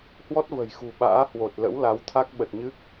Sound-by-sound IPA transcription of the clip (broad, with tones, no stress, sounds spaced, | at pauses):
h w ɔ˦˥ t̚ v ə̤˨˩ j x ṳ˨˩ ɓ a̰ː˧˥ h w o˨˩ t̚ l ə̰˧˥ w l a˨˦ w t̪ʰ a˦˥ k̚ ɓ ə˨˩ t̚ ɲ ɨ˦˥ k̚